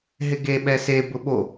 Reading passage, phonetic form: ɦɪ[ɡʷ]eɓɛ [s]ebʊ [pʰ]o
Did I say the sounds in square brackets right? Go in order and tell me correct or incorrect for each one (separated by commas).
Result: incorrect, correct, incorrect